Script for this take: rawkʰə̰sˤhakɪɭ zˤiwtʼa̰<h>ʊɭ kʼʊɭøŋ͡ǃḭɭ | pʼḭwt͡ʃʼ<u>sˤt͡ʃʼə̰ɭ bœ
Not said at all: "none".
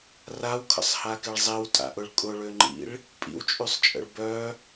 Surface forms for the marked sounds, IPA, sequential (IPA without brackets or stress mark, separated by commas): ʔ, y